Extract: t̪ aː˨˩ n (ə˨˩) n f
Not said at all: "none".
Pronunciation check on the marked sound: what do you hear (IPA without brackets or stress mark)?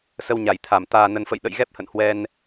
ə˨˩